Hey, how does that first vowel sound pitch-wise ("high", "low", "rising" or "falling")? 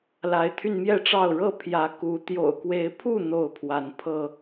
rising